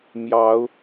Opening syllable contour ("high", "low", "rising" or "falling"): rising